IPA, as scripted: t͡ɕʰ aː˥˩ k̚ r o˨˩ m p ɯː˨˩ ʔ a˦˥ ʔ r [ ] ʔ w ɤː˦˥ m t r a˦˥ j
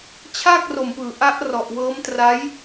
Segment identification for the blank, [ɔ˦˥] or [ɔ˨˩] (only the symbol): ɔ˨˩